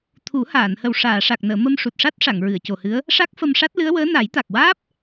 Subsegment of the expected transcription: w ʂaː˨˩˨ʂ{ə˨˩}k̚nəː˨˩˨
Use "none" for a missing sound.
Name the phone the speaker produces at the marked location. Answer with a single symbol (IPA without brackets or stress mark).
a˨˩